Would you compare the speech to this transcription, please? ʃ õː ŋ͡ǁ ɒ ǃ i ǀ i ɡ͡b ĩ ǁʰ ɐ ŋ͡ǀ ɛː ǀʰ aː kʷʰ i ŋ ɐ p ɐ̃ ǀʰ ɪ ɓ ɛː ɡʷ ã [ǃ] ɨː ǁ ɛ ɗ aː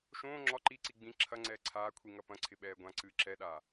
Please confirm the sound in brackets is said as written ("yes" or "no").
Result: no